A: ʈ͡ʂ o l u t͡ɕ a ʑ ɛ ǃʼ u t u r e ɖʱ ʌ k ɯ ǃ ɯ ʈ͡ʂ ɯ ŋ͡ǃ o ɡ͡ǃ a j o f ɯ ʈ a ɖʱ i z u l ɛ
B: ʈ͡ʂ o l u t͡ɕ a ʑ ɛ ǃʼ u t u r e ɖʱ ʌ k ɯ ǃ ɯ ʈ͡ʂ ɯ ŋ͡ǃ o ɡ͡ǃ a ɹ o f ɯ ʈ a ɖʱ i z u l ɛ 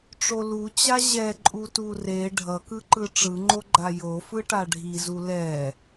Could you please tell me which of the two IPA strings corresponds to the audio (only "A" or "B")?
A